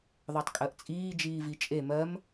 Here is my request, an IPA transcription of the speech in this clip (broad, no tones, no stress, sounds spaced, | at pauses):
ðˤ ɜ tˤ kʼ ɜ ʔ t͡sʼ iː d͡ʒ iː v i t͡ʃʼ e m ɜ m